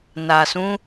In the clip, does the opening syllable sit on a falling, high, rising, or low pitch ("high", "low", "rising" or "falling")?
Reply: low